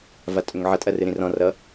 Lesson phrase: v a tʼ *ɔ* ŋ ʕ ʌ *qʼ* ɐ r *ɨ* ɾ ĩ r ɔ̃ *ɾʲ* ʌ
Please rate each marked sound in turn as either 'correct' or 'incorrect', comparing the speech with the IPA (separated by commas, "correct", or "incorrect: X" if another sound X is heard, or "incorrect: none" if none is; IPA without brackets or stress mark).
incorrect: ɵ, incorrect: tʼ, correct, incorrect: r